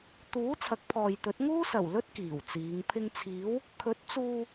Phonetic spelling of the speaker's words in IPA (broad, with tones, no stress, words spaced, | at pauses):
t̪uː˨˥ t͡sʰɐ˨˥k̚pʰɔː˨jt̪ɵ˨˥t̚ ŋuː˥ sɐ˨˩wlɵ˥t̚ kiː˨˩wt͡siː˨˧ŋ pʰɪ˧ŋt͡sʰiː˨˥w | kʰɵ˨˥t̚t͡suː˧